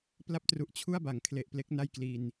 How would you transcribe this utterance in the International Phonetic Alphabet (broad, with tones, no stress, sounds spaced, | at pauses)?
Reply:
p l a˦˥ p̚ t r u˨˩ ʔ t͡ɕʰ u˥˩ a̯ b a˩˦ ŋ kʰ l e˨˩ ʔ p l e˦˥ k̚ n a˥˩ j k l i˧ n